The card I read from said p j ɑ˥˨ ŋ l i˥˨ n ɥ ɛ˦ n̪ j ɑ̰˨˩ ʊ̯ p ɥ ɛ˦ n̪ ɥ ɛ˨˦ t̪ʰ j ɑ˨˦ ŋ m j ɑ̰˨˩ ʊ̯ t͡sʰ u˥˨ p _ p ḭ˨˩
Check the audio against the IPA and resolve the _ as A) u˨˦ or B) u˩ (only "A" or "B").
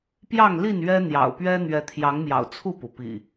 B